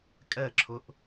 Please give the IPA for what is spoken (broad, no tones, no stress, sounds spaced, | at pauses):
kʼ ɛ ǁʰ ʊ ʔ